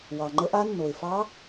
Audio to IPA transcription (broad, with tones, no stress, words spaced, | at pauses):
wɑ˩ŋ͡ǃə˧˥ʔa˧˥ nːo˩ɪ̯fɑ˧˥